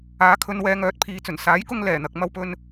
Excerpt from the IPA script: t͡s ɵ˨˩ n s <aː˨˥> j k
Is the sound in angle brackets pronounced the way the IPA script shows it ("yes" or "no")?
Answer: yes